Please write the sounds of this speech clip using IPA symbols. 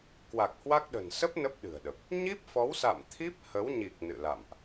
k w a˨˩ k̚ h w a˦˥ k̚ ɗ ə̤˨˩ n s ə˦˥ p̚ n ə˦˥ p̚ ɗ ɨ̤˨˩ ə̯ ɗ ə˨˩ p̚ | ɲ i˦˥ p̚ f ɔ˨˦ w s a̰˧˨ m t̪ʰ i˦˥ p̚ h ə˨˦ w ɲ i˨˩ k̚ n ɨ̰˧˨ l a̰˧˨ m ʔ

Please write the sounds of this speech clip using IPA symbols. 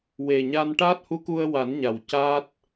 w e˨˩ ɲ a˧ n ʈ a˦˥ t̚ h u˧˥ k u˧ ə̯ w a˨˩˦ n ɲ a˨˩ w c a˦˥ t̚

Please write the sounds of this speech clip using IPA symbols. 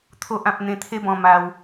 t̪ʰ o˨ ʔ ã˨ p̚ n̪ ẽ˧ t̪ʰ e˦ b ɔ̃˧ m a˧ w

